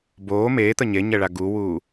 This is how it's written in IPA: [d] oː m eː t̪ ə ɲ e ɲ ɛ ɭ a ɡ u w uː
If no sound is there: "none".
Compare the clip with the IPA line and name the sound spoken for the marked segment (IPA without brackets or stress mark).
b